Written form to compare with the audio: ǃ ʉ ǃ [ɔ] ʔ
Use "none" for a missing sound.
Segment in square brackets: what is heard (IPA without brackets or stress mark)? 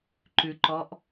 ɔ